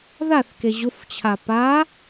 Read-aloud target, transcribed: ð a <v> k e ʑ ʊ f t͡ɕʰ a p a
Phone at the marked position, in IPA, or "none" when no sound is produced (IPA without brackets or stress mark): θ